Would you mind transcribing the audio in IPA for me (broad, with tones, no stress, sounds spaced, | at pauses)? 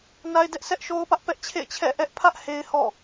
n a˦ ɪ̯ d ɛ˦ ʔ sʰ ɛ˦ ʔ ʃ o˦ ʊ̯ p ä˦ ʔ p ɛ˦ ʔ t͡ɕʰ ḛ˦˨ ɪ̯ t͡ɕʰ ɛ̰˦˨ ʔ ɛ˦ ʔ pʰ ä˦ ʔ h e˦ ɪ̯ h ɔ̰˦˨